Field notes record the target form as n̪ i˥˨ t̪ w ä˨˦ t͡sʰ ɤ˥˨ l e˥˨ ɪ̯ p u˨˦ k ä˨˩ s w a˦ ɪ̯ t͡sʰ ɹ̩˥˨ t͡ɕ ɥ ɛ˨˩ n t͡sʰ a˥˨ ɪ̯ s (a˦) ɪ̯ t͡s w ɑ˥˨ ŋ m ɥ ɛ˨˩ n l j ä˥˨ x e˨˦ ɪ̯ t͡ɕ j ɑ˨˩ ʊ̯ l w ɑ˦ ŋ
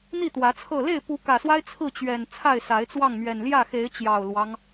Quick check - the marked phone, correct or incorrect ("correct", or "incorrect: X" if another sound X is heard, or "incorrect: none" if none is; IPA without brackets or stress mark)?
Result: incorrect: a˨˦